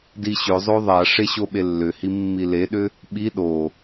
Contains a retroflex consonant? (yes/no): yes